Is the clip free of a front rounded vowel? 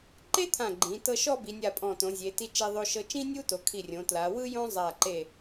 yes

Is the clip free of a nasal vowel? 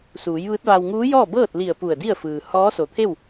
yes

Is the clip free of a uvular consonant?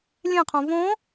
no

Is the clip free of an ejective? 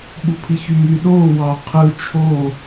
yes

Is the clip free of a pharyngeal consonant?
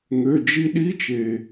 yes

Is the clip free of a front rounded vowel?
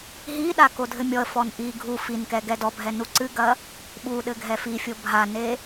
yes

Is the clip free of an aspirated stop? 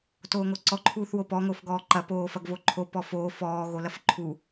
no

